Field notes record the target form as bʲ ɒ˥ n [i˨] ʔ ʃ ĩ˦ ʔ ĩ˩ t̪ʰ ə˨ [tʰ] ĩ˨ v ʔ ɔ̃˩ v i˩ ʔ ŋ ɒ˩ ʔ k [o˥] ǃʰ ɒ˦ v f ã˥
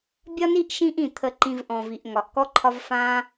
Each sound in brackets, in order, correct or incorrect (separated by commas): incorrect, incorrect, incorrect